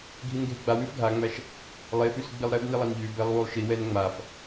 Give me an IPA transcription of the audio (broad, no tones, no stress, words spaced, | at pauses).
ɡʱinɡʱeɡ͡ba wʉfɡʱaŋ͡mæʃ | lˠefʉs ɡ͡bilˠɾɛb nilˠɛnʎʉ bɛlˠwulˠʃi wɛnŋ͡maf